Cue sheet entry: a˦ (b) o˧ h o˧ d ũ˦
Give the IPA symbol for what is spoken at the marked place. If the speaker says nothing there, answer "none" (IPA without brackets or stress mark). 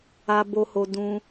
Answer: b